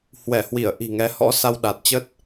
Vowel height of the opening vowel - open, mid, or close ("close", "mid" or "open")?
mid